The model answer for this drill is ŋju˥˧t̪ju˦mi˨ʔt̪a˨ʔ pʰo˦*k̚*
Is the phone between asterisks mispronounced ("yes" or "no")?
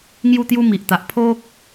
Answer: no